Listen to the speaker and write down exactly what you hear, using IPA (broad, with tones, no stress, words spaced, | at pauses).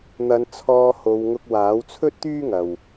n̪ɐ˨˧n t͡sʰɔː˧ho˨˧wŋʊ˧k̚ waː˨˥wt͡sʰɵ˥t̚t̪yː˥ ŋɐ˨w